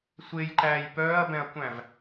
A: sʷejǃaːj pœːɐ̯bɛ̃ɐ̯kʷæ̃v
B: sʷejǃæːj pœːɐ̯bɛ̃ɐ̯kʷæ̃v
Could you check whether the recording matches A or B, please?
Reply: B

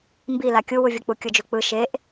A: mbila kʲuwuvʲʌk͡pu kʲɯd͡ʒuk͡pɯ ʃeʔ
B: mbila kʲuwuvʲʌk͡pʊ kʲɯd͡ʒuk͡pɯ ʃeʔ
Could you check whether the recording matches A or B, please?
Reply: A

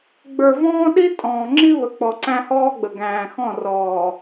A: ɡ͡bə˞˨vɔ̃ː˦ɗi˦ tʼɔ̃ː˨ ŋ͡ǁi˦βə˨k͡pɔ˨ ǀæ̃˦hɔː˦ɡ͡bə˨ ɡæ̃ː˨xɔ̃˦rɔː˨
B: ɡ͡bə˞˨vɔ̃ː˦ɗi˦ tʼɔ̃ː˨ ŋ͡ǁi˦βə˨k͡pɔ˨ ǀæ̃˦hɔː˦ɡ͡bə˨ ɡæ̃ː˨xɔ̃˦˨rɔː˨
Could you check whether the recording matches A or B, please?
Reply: B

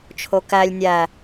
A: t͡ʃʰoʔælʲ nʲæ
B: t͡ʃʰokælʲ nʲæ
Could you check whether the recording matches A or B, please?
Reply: B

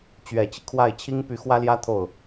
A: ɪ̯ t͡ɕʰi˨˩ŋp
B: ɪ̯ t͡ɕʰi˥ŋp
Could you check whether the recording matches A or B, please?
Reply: B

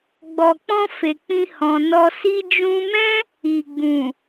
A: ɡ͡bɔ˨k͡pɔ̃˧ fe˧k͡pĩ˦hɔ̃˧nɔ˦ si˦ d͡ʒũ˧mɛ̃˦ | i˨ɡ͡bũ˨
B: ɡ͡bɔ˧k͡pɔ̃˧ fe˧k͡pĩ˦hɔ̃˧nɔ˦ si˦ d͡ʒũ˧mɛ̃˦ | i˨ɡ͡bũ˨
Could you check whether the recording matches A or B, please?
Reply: A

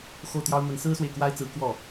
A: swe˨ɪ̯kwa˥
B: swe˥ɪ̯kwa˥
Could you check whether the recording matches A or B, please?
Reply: A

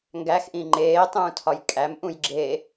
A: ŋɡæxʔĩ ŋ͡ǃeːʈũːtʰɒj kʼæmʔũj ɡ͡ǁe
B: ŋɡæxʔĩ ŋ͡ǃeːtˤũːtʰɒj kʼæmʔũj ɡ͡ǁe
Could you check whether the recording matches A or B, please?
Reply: B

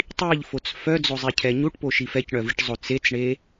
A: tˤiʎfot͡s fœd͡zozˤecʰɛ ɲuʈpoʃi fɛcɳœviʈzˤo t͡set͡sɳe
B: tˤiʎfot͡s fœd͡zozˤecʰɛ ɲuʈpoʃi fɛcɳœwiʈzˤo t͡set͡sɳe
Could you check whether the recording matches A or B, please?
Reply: A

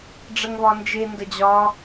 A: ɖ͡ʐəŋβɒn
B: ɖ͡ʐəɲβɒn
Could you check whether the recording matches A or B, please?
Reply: A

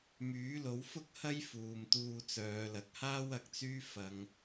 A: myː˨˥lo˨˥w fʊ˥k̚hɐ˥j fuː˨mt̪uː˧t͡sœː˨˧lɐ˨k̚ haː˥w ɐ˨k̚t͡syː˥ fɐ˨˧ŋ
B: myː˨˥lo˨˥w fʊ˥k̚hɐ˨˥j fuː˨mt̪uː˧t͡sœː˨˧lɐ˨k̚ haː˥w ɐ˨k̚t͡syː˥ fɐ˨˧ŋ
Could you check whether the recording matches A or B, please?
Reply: A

